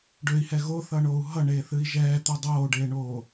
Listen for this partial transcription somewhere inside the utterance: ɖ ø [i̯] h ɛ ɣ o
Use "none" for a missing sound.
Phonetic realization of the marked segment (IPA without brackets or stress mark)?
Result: i̯